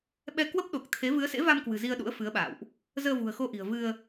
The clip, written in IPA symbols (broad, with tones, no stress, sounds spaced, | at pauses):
ɓ ɛ˧ k w ə˦˥ p̚ ɗ o˨˩ k̚ t̪ʰ e˨˦ v ɨ˨˦ ə̯ s ḛ˧˥ v a˧ m k w ɨ̤˨˩ z i˧ ə̯ ɗ ṵ˧˥ ə̯ f ɨ˨˦ ə̯ ɓ a̰ː˧˨ w ʔ | z əː˧ v ṳ˨˩ ə̯ x o˧ ʔ i̤˨˩ ə̯ v ɨ˧ ə̯